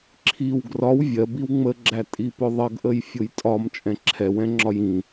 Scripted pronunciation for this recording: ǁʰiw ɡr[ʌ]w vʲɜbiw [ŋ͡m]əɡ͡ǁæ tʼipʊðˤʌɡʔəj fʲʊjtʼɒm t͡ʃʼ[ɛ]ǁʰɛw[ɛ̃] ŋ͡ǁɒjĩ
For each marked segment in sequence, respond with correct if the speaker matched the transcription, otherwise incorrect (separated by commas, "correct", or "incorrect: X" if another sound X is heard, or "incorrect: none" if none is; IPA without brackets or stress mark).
incorrect: ɒ, correct, incorrect: ɛ̃, correct